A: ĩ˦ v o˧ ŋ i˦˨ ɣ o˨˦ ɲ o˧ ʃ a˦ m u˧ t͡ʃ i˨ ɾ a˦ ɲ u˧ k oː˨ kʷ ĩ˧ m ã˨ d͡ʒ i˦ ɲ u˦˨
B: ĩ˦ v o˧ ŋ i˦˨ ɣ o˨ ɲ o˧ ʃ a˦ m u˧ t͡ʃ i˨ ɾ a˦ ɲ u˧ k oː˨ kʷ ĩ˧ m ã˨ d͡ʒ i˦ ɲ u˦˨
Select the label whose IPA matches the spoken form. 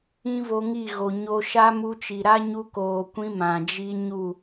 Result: B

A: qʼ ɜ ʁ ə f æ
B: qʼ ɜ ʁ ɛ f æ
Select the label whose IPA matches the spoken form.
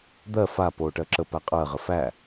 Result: A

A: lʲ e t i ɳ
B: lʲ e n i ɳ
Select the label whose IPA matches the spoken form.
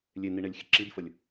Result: B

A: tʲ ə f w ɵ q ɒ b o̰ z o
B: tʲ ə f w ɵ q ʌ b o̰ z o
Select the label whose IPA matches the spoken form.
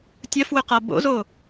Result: B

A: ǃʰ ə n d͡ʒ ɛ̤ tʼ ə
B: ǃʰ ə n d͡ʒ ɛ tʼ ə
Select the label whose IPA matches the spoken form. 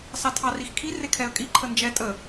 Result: B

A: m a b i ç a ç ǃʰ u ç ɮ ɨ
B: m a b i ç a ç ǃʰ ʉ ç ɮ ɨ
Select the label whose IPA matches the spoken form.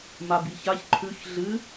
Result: B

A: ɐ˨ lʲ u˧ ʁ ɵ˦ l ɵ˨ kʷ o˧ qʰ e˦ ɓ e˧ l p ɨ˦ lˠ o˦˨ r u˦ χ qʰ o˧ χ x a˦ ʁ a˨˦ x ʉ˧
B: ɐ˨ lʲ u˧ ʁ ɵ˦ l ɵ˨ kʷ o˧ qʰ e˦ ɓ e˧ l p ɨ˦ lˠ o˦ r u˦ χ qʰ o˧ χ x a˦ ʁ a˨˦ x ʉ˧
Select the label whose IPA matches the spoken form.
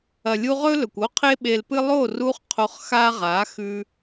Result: A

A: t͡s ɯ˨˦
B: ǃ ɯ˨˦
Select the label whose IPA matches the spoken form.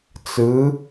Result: A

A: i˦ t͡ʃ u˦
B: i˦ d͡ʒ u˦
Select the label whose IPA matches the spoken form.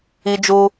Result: B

